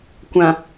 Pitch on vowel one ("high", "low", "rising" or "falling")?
low